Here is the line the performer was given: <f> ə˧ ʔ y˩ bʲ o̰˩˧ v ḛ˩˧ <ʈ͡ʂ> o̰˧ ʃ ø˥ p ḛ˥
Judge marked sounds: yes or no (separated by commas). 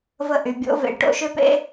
no, no